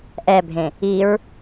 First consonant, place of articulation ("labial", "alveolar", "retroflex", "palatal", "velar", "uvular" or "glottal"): glottal